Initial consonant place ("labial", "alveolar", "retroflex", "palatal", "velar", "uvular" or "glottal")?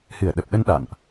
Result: glottal